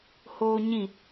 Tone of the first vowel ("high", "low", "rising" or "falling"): high